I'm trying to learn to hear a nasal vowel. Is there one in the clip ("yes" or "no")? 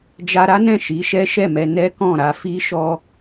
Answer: yes